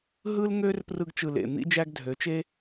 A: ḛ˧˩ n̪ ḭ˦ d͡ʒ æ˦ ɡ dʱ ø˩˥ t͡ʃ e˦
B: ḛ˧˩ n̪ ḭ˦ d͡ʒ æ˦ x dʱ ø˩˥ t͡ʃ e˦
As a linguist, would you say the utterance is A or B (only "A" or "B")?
A